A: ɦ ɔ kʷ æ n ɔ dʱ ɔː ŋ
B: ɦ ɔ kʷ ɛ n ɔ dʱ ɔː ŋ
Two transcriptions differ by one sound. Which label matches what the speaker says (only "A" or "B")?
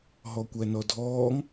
A